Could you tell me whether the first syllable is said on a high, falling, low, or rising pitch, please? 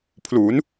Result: rising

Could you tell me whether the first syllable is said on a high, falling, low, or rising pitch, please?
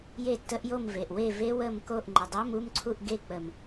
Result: falling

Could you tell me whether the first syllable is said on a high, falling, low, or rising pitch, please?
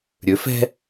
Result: rising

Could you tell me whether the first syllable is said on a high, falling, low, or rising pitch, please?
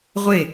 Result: falling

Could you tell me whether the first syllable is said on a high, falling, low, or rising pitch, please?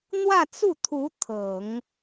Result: falling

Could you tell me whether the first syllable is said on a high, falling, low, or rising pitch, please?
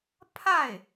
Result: falling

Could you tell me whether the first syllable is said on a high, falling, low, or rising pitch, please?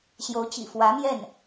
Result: rising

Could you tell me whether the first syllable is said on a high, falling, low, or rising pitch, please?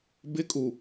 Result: high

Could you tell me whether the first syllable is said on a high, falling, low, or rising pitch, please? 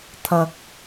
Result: low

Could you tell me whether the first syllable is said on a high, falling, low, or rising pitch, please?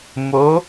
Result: rising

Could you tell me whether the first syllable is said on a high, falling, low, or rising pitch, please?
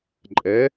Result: rising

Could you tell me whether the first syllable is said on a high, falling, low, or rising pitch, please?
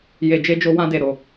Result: low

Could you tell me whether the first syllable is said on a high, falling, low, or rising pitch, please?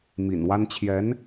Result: low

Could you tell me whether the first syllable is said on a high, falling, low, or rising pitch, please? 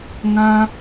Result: high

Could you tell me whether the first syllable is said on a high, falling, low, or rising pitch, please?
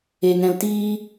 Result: low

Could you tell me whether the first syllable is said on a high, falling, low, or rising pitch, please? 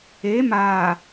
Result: rising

